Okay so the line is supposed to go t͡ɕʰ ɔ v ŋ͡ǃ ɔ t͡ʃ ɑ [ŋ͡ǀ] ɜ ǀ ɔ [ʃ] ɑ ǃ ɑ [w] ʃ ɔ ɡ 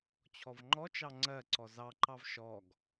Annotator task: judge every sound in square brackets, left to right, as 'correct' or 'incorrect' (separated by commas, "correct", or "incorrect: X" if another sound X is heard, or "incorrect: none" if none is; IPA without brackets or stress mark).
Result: correct, incorrect: z, incorrect: v